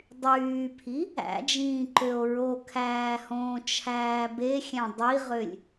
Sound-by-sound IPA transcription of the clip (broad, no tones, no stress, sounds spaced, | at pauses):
dˤ yː pʰ i | æ̰ d͡ʒ ĩː ǃ ø o̯ ɹ o kʰ æː h õː t͡ʃʰ æː b e xʲ æ̃ dˤ i ʁ ø lʲ